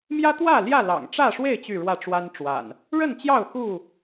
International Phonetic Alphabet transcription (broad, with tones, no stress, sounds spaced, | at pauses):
m j ä˦ t̪ w ä˥˨ l j ä˥˨ l ɑ̰˨˩ ŋ ʈ͡ʂ ä˥˨ ʂ w e˥˨ ɪ̯ t͡ɕ y˥˨ ɻ w ä˥˨ ʈ͡ʂ w a˦ n ʈ͡ʂ w a̰˨˩ n | ɻ ə˥˨ n t͡ɕ j ɑ˥˨ ʊ̯ x u˥˨